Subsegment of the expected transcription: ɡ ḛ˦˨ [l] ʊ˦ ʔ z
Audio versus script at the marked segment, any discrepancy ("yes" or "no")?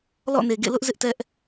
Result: no